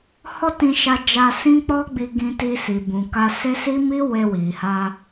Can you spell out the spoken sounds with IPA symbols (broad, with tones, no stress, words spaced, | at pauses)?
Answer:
hɔ˦tĩ˧ ʃa˧d͡ʒa˧sĩ˦k͡pɔ˦ ɡ͡bi˧ɡĩ˧ti˧ si˨bũ˨ ka˧se˦si˦mi˦ we˧wi˨ha˧